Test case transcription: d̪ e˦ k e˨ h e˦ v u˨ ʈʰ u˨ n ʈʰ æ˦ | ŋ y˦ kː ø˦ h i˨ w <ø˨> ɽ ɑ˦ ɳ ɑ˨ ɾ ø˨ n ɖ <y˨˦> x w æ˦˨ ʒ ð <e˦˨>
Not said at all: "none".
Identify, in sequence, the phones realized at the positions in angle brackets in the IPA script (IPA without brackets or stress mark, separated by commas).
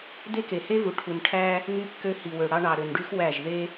ø˨, y˦, e˦